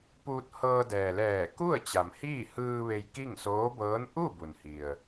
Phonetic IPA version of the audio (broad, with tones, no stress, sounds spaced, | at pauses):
p uː˧ t̚ h ɤː˧ d ɛː˩ l ɛː˧˩ k u˥˨ ə̯ t͡ɕ a˩ m h iː˥˨ h ɯː˧ ʋ e˧ j k i˥˨ ŋ s oː˧˥ b ɤː˧˥ n ʔ u˥˨ b u˩ n h i˩ ə̯